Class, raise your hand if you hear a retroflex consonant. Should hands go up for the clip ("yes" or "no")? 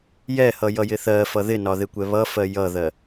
no